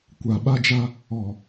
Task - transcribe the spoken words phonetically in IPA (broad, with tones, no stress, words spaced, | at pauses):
kʷa˨ɓa˦d͡ʒa˦ | ɔ˨